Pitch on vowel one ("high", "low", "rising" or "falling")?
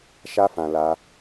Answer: high